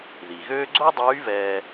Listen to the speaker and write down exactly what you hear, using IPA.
ð i˩ ɣ øː˥ ɡ͡ǀ o˥ dˤ yː˧˥ v ɛː˧

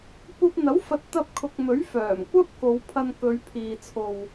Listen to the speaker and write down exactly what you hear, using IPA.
kʷ ɐ˧ p̚ n̪ ɐ˨˥ w f ɐ˨˥ t̚ t̪ ɐ˥ p̚ kʰ ʊ˧ k̚ m ɵ˨˥ ɥ f œː˨˩ m kʷ ɐ˥ p̚ k o˨˧ w pʰ ɐ˧ n k ɵ˨˧ ɥ pʰ iː˨ t͡sʰ o˨ w

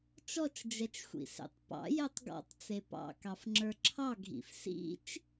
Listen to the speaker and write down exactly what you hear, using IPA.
t͡ʃ ɔ t͡ʃ d͡ʒ ɛ t͡ʃ xʷ ḭ s ḛ tˤ p ɑ̰ j ɛ tˤ ɡ ɔ̰ tˤ t͡s e p ɑ̰ k ɑ f ŋ͡ǁ ə˞ ǁʰ ɑ ɡʱ ḭ f s ḭ t͡ʃ

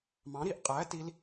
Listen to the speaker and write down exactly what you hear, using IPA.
m ɑ̃˩˥ ɾ i˧˩˧ ʔ qʼ æ˩˥ t i˧˥ l

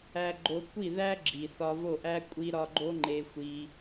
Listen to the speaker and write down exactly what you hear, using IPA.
æ˧ ɡ͡ǃ o˧ kʷ i˦˨ ð æ˦ ɡ͡ǁ i˨ θ ɒ˧ v o˦˨ ʔ æ˦ kʷʼ i˦ ɾ ɒ˦ ɡ͡ǃ o˧ ŋ͡ǃ e˧ xʷ i˧

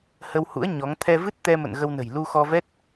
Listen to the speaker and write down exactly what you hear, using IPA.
h ə˧ w h ṵ˧˥ ə̯ ɲ ɔ˨˦ ŋ t̪ʰ ɛ˧ v ɨ˦˥ t̚ t̪ ɛ˧ m ə̰˧˨ n ɣ ə˧ w n ə̤˨˩ j l u˧ x ɔ˧ v ɛ˦˥ t̚

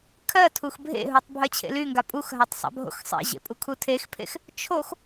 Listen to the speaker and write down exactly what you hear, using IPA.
kʰ ɜ tʰ u x bʱ ḛ ɦ u tˤ bʱ ɜ t͡ɕʰ ḛ l y ŋ ɡ a pʼ u x ɦ a tˤ sˤ a̰ bʱ o̰ x sˤ ḛ ʑ ḛ pʼ u kʰ u tʰ e x pʰ ḛ x | t͡ʃʰ o x

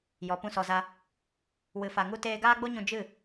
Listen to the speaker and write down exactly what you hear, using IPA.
j ɔ˨ p ũ˦ s ɔ˧ z a˦ | w ɨ˧ f a˧ ŋ u˦ t eː˧ ɡ aː˦ ɡ͡b o˦ ɲ ũ˧ d͡ʒ ɨ˦˨

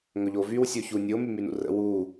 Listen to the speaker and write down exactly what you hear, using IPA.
ŋ ɵ ʎ o v y w sʲ o ç u nʲ o m y m y n ṵ r ə̰ w u

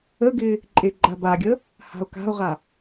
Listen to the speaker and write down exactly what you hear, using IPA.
ə ɡ ɪ | ǃʼ e ɡ͡ǃ a b a ɡʲ ə | h a̤ o̯ k a̤ o̯ ʁ a

